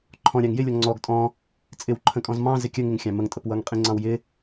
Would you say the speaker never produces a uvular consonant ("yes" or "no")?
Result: no